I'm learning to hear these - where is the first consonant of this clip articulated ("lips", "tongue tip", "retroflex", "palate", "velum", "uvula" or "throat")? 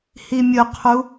throat